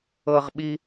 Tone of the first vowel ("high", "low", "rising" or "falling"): high